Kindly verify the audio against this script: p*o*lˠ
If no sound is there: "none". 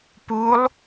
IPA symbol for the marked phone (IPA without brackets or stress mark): u